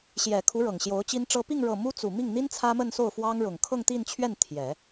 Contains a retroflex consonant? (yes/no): yes